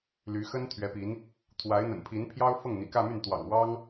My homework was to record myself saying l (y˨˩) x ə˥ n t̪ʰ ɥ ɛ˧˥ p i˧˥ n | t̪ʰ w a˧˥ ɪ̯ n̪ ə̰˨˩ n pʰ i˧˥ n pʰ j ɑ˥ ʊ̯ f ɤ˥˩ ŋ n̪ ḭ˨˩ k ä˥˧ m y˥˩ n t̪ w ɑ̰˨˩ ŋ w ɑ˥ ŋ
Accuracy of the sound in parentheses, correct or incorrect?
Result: incorrect